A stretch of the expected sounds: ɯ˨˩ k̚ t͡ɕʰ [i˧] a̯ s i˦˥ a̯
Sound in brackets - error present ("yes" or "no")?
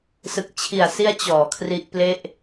yes